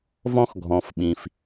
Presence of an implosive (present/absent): present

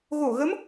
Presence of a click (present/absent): absent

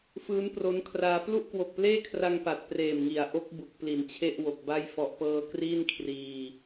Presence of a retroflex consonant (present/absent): absent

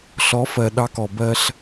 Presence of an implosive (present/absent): present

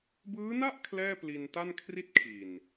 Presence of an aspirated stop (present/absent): present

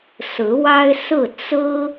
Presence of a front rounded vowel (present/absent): absent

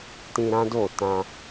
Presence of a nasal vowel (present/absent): present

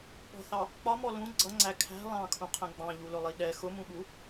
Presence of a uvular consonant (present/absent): present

